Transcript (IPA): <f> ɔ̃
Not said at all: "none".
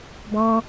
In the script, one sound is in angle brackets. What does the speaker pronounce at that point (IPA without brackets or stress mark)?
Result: b